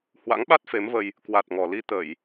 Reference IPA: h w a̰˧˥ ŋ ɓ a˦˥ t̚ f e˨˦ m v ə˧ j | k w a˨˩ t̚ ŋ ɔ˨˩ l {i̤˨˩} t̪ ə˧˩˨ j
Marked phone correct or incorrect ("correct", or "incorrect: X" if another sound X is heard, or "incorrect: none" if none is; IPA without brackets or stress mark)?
incorrect: i˧